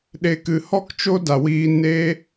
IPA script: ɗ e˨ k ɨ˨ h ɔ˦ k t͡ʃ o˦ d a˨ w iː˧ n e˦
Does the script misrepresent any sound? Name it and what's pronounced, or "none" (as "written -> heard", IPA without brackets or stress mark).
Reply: none